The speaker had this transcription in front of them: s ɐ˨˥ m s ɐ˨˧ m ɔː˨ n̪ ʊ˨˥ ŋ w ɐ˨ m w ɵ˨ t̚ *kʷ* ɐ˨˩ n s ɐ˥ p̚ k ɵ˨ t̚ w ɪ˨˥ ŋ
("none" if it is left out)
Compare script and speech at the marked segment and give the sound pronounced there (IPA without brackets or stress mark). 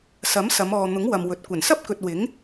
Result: kʷ